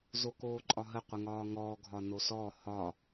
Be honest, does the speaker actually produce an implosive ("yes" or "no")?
no